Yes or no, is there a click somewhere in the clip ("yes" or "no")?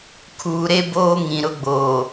no